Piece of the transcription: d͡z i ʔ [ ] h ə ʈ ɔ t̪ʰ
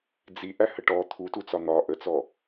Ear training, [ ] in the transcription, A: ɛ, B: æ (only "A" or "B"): B